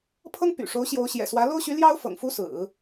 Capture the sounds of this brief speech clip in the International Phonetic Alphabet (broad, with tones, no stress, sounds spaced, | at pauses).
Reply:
pʰ ɤ˥ ŋ p y̰˨˩ ʂ o˧˥ ʊ̯ ɕ j o˧˥ ʊ̯ ɕ j ɛ̰˨˩ s w ä˧˥ l o˥ ʊ̯ ɕ y˧˥ l j ɑ˥ ʊ̯ f ɤ̰˨˩ ŋ f u˥ s ɹ̩˨˩˦